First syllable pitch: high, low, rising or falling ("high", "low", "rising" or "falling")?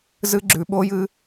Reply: high